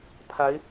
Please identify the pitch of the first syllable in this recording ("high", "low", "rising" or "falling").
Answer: rising